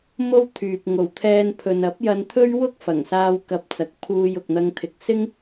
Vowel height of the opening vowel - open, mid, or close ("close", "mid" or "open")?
mid